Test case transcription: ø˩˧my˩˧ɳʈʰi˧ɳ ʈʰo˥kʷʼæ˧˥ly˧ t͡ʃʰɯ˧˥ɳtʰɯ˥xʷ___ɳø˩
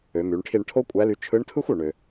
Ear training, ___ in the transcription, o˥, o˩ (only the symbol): o˩